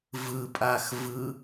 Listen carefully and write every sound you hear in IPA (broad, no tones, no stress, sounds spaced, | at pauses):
v ɯ pʼ a x v ɯ